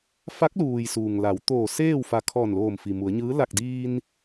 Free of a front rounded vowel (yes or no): yes